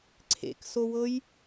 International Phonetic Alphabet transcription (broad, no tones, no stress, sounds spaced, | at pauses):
ǀʰ ḛ k s o w ɤ j